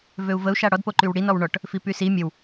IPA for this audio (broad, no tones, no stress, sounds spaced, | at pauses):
v ø u̯ v ə u̯ ʃ a ɽ ɔ d p o ǃ y w ɽ i n ɔ w ɳ ɔ ʈ | f i p y s i mʲ ə w